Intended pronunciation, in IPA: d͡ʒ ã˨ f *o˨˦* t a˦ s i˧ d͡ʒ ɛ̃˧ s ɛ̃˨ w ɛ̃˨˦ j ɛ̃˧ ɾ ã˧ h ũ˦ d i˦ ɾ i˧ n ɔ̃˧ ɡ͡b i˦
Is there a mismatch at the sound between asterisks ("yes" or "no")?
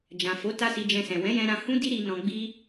no